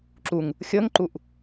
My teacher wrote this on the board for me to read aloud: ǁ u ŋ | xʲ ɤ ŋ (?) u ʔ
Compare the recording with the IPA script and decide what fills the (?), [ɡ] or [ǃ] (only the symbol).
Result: ǃ